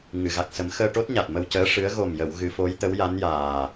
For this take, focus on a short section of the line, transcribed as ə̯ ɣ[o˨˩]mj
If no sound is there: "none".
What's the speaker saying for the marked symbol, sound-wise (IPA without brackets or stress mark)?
o˨˩